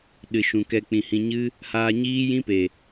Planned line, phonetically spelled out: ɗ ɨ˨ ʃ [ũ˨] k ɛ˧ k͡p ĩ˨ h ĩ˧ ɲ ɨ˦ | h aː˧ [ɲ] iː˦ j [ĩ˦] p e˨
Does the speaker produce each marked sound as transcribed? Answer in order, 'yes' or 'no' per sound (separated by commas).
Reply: yes, yes, yes